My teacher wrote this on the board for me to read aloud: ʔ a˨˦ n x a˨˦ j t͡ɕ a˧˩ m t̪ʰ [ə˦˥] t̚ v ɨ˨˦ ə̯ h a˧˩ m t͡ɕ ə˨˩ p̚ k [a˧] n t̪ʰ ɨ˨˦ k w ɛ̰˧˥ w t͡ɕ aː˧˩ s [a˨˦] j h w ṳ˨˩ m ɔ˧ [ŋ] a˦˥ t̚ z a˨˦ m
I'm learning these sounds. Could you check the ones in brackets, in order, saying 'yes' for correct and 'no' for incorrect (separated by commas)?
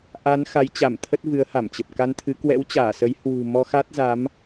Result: yes, yes, no, no